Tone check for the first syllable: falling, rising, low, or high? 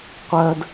high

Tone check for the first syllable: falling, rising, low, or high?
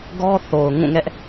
high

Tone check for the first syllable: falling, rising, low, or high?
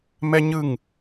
high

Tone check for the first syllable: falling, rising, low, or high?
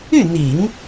falling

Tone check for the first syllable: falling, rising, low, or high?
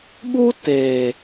high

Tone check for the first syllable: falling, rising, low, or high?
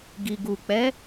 low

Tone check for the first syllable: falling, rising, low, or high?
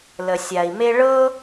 low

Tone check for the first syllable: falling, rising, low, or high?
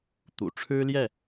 low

